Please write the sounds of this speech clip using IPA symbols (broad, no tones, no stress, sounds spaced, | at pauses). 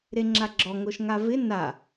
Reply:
ɾ e ŋ͡ǁ a ɡ͡ǁ ɔ ŋ o ʃ ŋ a v ɪ n a